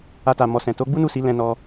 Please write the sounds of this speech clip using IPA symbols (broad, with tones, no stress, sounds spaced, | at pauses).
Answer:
a˧ t a˨ m ɔ˨ s ɛ̃˨ t o˨˦ ɡ͡b u˦ n u˦˨ s i˨˦ l ɛ̃˧ n ɔ˧